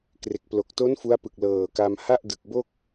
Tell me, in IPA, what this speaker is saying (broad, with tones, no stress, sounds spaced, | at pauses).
k r e˨˩ k̚ p l o˨˩ k̚ t o˦˥ n f u˦˥ a̯ p ɯ˨˩ k̚ l ɤː˨˩ k a˧ m h a˥˩ ʔ d ɯ˨˩ k̚ b o˥˩ k̚